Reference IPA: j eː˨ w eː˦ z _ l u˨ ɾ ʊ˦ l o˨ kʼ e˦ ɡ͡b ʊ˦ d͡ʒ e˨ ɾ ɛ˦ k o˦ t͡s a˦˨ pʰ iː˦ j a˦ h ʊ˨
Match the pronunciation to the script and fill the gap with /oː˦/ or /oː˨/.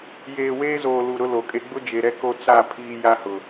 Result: oː˨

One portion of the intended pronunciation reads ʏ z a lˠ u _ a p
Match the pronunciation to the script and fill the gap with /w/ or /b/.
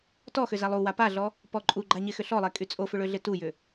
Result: w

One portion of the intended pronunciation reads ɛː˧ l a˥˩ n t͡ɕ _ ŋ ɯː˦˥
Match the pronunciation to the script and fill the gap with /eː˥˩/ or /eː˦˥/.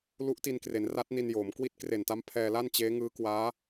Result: eː˦˥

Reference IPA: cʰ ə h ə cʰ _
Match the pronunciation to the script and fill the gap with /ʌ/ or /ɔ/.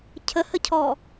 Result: ɔ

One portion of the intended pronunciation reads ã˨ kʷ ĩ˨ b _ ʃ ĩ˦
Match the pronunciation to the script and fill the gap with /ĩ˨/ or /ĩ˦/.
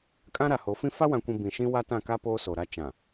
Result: ĩ˨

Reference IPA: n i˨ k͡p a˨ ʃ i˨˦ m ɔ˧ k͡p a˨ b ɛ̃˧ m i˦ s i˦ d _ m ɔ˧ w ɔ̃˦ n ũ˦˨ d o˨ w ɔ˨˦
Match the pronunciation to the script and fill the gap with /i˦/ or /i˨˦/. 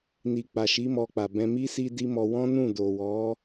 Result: i˦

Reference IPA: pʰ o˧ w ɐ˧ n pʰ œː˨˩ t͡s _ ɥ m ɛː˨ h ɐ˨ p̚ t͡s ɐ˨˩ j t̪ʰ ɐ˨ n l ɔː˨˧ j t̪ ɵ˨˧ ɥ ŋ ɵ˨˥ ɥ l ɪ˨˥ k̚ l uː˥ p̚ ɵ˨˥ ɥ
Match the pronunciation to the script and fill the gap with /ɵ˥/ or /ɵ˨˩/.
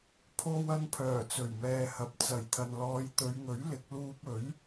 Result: ɵ˨˩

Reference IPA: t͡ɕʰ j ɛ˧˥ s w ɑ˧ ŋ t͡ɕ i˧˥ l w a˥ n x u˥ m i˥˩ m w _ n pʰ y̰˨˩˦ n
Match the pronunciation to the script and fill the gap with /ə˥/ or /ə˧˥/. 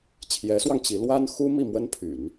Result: ə˥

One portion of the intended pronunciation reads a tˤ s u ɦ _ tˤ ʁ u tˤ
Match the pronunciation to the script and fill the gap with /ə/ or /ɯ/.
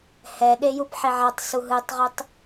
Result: ɯ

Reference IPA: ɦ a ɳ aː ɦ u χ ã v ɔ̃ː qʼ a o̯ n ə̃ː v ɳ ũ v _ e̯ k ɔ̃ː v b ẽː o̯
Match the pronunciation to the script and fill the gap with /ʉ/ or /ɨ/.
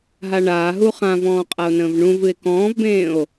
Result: ɨ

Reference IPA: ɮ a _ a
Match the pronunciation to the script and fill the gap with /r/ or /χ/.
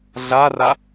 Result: r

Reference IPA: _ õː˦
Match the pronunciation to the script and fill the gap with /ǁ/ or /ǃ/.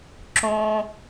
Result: ǁ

